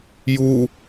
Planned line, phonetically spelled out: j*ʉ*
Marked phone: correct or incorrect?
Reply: incorrect